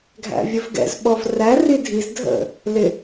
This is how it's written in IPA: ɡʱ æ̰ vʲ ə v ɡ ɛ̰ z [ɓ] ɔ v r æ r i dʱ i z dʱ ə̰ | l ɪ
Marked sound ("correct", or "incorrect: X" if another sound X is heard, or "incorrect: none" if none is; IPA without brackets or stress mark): correct